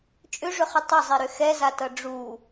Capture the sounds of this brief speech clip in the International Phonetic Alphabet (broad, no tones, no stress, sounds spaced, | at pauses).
t͡ʃʼ ʏ ʐ ʏ χ ʏ tˤ ə zˤ i ɾ ʏ x ɛ z a t ʌ ɖ͡ʐ u